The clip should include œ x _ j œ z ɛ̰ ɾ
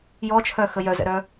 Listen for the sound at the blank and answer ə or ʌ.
ə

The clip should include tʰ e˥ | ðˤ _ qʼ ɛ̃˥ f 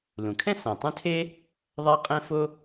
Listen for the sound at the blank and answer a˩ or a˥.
a˥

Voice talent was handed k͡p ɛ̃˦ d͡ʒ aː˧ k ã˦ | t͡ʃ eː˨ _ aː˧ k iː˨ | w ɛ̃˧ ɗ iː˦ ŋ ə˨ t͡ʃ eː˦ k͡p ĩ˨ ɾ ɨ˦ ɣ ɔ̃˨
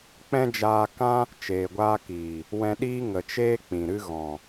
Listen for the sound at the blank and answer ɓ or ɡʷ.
ɡʷ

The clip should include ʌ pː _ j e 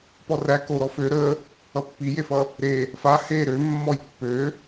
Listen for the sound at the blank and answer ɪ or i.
i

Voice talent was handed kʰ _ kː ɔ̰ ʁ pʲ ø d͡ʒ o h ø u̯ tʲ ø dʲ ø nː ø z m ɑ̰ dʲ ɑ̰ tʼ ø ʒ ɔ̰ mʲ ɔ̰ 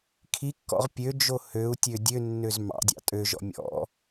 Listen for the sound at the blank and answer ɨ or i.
i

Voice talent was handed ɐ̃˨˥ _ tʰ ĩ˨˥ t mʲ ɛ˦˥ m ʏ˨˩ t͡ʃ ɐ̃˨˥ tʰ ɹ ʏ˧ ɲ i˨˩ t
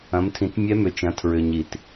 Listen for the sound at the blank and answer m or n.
m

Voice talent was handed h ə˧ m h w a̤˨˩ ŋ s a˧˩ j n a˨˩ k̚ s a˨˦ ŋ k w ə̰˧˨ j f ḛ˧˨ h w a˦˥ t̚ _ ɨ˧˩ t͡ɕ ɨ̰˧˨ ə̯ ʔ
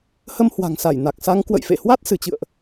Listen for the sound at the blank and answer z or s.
s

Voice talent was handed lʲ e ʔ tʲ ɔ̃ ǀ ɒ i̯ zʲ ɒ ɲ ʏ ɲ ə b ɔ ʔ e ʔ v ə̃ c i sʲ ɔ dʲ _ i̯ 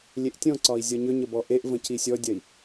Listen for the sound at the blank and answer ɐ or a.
ɐ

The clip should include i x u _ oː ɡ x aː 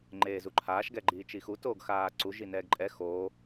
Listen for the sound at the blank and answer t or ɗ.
t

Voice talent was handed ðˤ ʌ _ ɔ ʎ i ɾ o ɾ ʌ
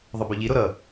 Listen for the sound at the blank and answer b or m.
b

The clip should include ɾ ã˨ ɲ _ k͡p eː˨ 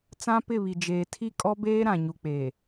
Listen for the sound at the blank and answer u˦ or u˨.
u˨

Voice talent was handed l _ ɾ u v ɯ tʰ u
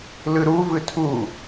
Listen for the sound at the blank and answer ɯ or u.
ɯ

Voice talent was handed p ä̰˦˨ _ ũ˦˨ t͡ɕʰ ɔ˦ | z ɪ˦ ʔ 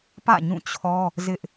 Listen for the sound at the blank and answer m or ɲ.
ɲ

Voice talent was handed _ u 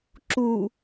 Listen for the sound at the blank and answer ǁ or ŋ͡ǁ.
ǁ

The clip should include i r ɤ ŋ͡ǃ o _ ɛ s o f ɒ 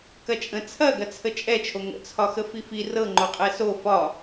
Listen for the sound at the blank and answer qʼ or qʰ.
qʼ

